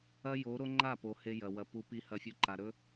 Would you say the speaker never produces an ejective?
yes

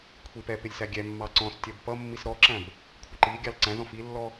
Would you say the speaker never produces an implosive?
yes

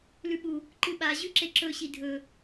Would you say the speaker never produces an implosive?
no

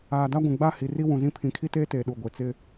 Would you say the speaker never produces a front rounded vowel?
yes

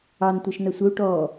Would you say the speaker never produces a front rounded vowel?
yes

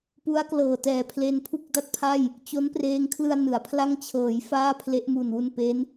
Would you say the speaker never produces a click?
yes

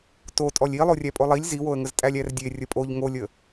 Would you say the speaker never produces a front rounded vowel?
yes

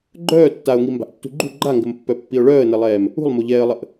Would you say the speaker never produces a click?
no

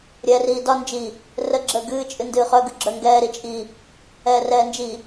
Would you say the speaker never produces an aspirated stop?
yes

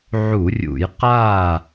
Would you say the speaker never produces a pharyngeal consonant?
no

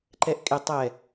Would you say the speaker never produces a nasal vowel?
yes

